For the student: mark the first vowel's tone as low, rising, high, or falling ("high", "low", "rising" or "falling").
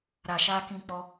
low